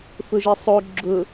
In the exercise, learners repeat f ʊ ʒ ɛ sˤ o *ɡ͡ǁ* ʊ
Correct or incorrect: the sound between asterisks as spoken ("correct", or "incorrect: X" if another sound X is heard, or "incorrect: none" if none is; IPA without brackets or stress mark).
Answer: correct